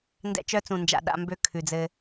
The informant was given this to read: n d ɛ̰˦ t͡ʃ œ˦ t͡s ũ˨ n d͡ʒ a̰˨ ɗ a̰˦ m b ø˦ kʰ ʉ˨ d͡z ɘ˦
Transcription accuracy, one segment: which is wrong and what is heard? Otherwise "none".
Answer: none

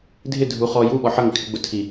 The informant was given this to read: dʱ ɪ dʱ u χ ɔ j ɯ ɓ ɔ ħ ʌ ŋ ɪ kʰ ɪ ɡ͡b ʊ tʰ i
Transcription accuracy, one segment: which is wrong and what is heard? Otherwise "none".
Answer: ɯ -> u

